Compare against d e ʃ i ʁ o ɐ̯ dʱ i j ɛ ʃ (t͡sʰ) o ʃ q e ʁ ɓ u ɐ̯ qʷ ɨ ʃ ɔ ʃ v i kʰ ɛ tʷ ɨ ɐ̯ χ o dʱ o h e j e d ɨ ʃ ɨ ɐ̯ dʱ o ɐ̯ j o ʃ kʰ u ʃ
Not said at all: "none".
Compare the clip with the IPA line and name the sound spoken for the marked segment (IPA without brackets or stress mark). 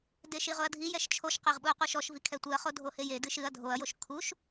t͡ʃʰ